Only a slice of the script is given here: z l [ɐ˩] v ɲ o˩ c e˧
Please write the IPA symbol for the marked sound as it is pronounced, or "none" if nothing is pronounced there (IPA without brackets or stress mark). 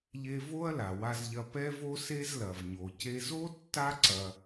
ɐ˩